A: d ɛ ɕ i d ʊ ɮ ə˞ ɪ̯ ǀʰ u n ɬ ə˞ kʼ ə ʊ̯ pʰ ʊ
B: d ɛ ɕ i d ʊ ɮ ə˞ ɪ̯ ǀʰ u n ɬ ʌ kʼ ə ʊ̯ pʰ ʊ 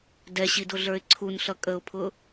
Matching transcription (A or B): B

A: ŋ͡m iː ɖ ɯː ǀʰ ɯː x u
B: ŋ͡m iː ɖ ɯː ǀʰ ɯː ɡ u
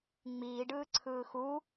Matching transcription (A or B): A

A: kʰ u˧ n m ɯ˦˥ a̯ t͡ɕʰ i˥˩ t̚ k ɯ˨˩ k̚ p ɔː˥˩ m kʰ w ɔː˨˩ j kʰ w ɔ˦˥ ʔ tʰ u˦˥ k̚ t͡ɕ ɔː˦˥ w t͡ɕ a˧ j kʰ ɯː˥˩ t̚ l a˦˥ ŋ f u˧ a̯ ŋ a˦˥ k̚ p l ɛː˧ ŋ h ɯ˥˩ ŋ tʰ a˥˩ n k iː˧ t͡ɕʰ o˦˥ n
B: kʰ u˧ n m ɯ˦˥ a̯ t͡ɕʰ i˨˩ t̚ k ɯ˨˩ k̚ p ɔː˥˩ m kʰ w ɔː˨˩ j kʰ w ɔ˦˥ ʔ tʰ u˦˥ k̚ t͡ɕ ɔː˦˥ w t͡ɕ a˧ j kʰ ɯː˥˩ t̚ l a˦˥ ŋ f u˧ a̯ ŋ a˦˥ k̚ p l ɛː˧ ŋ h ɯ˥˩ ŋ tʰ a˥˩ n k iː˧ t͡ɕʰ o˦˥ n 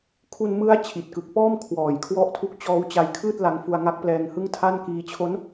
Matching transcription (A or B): B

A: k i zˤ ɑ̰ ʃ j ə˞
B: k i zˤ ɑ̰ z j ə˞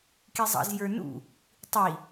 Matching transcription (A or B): B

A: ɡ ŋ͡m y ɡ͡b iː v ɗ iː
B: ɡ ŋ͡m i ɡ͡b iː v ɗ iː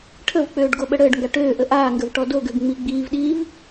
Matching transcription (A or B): B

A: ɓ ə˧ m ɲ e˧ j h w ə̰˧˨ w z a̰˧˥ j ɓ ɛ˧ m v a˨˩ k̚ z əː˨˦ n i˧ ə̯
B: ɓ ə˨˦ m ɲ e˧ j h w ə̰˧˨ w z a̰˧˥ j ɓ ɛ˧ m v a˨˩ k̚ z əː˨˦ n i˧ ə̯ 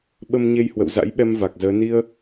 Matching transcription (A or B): A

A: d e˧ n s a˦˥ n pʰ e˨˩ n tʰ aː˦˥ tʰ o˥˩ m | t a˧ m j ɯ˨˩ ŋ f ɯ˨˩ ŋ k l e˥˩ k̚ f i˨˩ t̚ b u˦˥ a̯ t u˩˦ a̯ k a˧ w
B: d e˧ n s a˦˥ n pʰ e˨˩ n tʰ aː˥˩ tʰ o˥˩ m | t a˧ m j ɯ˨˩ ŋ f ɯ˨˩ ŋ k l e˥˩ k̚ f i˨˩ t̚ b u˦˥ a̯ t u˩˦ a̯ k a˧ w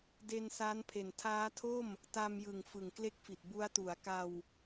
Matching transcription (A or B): A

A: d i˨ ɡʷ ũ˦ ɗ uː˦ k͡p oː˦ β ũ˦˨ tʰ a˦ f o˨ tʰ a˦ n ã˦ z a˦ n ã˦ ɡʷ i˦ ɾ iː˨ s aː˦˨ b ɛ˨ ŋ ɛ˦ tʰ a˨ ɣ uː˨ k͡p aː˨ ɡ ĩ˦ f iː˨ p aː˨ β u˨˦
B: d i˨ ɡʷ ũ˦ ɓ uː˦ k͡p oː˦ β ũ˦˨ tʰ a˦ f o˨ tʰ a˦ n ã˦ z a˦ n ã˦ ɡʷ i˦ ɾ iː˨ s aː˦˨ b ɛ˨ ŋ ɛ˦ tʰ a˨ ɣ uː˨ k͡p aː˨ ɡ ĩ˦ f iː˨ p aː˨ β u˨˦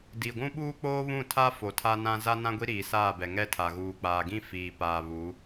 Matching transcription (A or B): B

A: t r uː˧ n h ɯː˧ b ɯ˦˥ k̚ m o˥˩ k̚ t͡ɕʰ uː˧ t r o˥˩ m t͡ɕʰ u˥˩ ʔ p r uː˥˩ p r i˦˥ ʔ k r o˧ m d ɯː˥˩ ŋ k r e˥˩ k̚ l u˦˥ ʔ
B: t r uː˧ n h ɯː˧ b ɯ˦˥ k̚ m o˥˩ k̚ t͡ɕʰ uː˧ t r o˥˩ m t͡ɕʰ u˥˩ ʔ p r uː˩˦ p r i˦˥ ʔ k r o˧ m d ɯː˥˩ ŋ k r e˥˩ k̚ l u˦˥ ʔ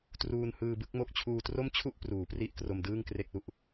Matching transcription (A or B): B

